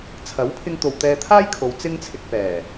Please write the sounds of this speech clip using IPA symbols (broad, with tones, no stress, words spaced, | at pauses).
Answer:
t͡sʰɐ˨˥wpʰɪ˧ŋt̪o˨w t̪ɛː˧t̪ʰaː˥jkʰo˨˧w t͡sɪ˥ŋt͡sʰɪ˧k̚ pɛː˨˩